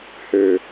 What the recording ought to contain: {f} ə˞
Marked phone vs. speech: incorrect: h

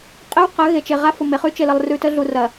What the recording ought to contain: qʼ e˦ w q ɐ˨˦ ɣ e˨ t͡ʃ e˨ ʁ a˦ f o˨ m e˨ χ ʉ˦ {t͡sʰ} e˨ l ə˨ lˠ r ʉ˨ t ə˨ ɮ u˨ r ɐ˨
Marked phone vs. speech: incorrect: t͡ʃ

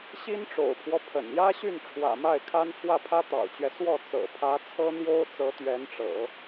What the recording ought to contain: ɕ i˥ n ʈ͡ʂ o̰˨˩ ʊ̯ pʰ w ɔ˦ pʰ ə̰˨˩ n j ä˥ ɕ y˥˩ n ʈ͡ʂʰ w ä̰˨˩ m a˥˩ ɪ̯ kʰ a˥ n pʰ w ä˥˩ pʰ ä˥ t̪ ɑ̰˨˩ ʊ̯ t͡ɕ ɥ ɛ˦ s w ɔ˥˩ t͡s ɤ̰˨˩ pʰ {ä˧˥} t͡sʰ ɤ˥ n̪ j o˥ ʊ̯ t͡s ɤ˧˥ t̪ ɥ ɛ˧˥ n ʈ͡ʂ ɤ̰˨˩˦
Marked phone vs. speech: correct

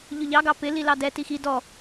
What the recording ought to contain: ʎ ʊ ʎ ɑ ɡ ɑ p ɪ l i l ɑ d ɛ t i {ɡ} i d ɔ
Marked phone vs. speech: incorrect: x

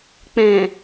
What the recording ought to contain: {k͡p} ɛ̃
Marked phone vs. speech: correct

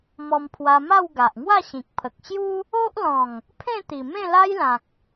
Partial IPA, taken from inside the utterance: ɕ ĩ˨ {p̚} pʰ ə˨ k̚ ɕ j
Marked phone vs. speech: incorrect: k̚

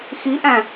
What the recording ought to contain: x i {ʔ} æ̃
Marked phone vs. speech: correct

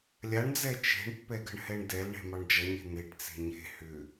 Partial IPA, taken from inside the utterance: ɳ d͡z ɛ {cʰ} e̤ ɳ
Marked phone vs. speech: incorrect: t͡ʃ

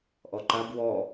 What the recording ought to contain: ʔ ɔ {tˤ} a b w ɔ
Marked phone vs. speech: incorrect: ǃ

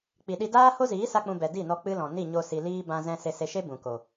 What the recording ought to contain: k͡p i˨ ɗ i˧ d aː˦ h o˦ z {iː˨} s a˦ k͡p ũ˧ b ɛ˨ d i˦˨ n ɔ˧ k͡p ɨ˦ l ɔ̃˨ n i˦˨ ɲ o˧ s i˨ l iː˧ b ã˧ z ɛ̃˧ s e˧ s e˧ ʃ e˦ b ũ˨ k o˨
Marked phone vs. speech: incorrect: iː˨˦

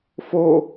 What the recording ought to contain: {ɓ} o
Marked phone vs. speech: incorrect: f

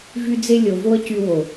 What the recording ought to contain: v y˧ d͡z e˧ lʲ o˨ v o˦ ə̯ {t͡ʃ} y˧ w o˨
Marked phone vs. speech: incorrect: c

